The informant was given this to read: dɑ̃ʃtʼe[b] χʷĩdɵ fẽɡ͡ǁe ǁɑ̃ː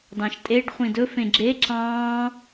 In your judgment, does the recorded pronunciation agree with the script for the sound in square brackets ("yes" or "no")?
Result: no